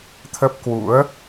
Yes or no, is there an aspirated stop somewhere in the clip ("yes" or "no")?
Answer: yes